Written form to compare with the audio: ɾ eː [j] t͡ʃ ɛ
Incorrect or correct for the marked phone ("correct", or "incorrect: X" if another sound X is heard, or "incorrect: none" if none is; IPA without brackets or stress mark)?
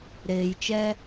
correct